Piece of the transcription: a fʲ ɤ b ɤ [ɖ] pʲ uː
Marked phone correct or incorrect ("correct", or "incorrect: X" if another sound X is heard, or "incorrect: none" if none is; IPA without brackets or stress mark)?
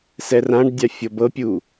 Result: incorrect: none